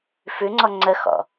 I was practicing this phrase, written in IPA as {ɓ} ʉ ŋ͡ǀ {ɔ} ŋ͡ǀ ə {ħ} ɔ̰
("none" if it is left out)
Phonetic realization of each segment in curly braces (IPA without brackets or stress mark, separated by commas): f, ɔ, x